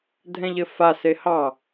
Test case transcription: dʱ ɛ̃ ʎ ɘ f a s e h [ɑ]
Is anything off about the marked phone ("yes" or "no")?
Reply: no